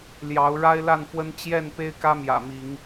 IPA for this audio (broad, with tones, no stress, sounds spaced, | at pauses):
l j ɑ˨˦ ʊ̯ ɻ a˦ ɪ̯ l a˥˨ n f w ə˦ n t͡ɕ j ɛ˥˨ n p e˦ ɪ̯ k ä˦ m j ä̰˨˩ m i˨˦ ŋ